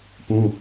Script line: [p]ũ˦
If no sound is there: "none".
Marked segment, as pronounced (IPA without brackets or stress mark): p